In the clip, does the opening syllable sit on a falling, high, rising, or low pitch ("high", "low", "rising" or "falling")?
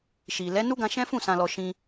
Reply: low